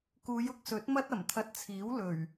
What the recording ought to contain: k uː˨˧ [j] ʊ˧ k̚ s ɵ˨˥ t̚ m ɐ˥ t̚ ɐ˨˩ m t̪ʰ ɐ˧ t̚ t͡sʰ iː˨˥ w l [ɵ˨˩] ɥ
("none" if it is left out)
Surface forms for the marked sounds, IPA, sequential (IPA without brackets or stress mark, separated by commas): j, ɵ˨˩